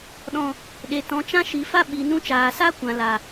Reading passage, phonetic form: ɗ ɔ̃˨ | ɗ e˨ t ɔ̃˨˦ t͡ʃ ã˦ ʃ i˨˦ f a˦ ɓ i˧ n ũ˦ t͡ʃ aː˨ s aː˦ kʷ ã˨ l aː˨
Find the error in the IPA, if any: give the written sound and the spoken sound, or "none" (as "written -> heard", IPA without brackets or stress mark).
none